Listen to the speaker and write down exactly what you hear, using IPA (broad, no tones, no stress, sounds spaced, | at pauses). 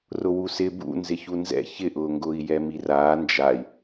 r ʊ w u s ɪ b ṵ n z ɪ ç u n z ɛ̰ ç ɪ ʔ ʊː ŋ ɡ ʊː i̯ j ɛ m i r aː n d͡ʒ a i̯